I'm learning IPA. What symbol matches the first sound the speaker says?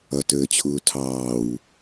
ʌ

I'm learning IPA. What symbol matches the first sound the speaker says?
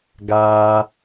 ɡ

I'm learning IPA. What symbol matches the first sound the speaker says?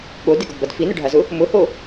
ɠ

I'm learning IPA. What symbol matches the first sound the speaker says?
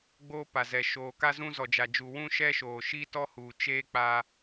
ɡ͡b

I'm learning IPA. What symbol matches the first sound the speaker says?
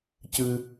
c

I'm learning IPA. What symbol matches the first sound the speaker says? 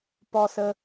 p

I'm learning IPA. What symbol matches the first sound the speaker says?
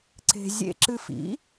ǀ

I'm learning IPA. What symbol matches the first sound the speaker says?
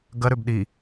ɡ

